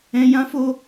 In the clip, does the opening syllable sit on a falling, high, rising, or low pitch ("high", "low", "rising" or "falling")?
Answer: high